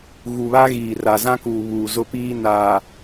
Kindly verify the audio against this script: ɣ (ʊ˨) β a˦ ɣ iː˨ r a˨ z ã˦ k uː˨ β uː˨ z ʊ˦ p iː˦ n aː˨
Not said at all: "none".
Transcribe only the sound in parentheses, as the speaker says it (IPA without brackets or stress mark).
u˨